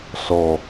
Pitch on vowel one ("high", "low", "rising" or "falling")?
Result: low